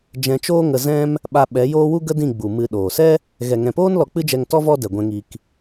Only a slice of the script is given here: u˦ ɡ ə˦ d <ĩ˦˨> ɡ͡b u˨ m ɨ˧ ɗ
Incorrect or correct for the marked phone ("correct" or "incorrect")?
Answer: correct